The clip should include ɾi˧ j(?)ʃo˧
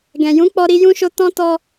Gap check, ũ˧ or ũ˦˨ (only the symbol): ũ˧